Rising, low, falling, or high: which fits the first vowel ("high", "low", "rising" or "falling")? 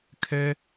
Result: high